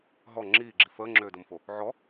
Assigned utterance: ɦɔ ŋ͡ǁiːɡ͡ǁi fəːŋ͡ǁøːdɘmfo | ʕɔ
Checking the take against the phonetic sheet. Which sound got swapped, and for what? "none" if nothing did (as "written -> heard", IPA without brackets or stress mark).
none